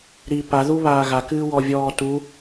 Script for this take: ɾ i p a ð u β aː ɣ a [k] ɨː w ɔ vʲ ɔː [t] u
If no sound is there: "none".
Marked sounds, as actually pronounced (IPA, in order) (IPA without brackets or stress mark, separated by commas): k, t